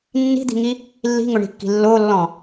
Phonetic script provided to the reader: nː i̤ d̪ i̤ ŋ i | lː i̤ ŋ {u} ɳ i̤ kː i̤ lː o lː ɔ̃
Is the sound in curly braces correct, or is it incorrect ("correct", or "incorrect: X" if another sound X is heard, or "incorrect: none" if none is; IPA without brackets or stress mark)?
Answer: incorrect: ʊ